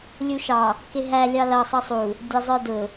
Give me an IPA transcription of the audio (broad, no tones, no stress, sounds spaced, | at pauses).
lʲ u ʃ ɑ | k ɪ ɦ æ lʲ ɑ l ʌ sˤ ʌ sˤ u | dʲ ʌ zˤ ə˞ d ʊ